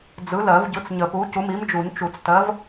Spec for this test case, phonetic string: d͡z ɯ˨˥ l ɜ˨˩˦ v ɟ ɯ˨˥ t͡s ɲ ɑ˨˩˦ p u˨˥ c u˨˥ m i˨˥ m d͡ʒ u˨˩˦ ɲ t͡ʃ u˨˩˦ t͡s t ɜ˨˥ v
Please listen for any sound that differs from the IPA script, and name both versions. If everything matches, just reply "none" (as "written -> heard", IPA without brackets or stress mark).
ɑ˨˩˦ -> ə˨˩˦